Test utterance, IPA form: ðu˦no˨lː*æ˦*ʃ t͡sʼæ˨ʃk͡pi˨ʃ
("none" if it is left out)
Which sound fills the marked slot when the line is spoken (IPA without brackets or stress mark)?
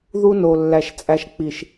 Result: æ˨